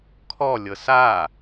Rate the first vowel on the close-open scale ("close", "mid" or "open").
mid